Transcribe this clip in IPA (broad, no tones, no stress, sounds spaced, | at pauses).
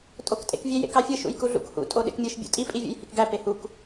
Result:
tʼ o k tʼ ḛ k vʲ e j ḛ k ɑ fʲ ɯ ʃ ṵ j k u ɮ ṵ k h ṵ tʼ o ɗ ḛ k mʲ ɯ ʃ bʲ ṵ tʼ i pʼ i vʲ ṵ j h i k ɡ æ p e h u k